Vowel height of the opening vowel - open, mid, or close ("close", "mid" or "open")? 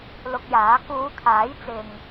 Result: close